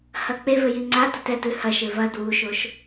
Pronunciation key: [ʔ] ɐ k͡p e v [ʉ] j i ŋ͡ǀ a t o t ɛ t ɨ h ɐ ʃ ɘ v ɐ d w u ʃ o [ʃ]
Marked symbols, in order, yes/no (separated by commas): no, no, yes